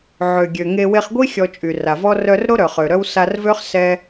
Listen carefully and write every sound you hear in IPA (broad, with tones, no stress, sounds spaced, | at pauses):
ʕ ø˩ ɡʲ ø˩ ŋ e˧ w e˧ χ ɡʷ i˥ xʲ ɔ˧ t͡ʃʼ y˩ r a˩ v ɔ˥ r œ˧ r ɾ o˥ ɾ œ˩ χ ø˩ ɾ œ˥ w s a˧ r v ø˥ χ s ɛ˧